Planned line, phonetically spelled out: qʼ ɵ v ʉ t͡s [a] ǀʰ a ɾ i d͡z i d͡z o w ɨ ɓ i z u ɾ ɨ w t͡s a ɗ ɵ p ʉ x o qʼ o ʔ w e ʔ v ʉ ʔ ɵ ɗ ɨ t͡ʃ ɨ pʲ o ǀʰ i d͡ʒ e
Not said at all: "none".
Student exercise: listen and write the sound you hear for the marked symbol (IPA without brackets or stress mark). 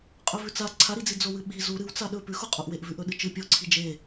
a